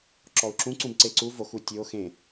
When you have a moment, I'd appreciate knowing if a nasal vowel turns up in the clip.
yes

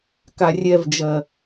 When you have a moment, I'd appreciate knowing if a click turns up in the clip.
no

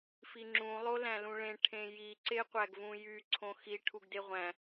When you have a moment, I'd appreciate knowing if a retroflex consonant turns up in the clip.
yes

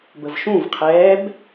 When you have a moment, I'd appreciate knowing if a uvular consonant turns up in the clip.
yes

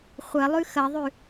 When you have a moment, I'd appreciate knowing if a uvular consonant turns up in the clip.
yes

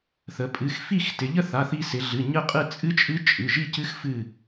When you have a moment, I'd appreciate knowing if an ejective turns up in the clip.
yes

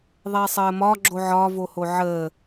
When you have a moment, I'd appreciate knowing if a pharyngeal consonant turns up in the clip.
yes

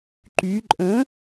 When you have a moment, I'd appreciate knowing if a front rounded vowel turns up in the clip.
yes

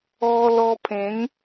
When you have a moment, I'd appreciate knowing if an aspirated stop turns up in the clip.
yes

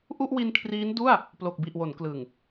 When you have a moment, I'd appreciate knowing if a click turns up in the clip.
no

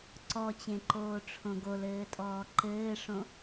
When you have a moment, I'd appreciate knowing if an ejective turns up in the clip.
yes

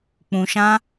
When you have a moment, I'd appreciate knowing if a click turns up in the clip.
no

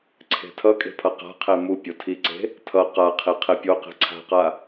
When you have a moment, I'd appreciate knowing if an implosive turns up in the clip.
no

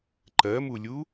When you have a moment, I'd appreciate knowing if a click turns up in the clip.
yes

